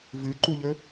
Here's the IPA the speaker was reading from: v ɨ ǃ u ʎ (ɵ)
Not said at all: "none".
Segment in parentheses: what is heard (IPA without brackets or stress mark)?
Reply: ɵ